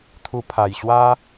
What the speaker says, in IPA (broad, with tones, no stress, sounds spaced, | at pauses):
t̪ʰ u˧ pʰ a˨˩ j ɕ w a˦